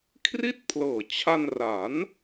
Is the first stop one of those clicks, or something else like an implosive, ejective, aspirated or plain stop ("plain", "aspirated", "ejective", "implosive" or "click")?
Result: aspirated